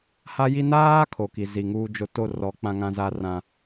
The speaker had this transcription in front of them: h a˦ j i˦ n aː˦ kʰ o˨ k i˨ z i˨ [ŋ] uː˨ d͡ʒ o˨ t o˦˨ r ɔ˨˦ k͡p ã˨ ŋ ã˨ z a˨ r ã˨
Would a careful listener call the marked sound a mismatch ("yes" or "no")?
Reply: no